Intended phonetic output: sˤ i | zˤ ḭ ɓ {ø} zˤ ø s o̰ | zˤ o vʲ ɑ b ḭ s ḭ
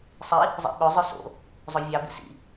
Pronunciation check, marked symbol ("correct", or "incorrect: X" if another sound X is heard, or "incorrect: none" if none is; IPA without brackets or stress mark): correct